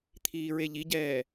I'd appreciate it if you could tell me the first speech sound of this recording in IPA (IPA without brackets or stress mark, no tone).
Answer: t̪ʰ